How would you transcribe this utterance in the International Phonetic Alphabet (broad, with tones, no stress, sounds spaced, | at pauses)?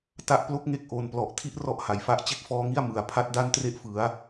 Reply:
t a˦˥ ʔ p l o˥˩ k̚ ŋ e˦˥ k̚ ʔ o˨˩ n p l ɔ˨˩ ʔ tʰ i˥˩ ʔ r ɔ˦˥ ʔ h a˨˩ j f a˥˩ ʔ t͡ɕ e˥˩ k̚ f ɔː˦˥ ŋ i˥˩ a̯ m ɯ˨˩ a̯ pʰ a˦˥ t̚ d a˥˩ n t r e˦˥ ʔ f ɯ˩˦ a̯